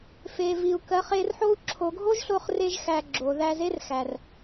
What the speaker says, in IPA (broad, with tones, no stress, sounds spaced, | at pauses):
f e˨ v i˨ u̯ k ɜ˧ χ e˧ r ħ o˦ u̯ ǁʰ o˨ ɡʱ o˦ ʒ ɬ o˧ χ r e˧ ʒ x æ˧ ɡ͡ǁ o˨ ð æ˧ z e˦ r x æ˨ r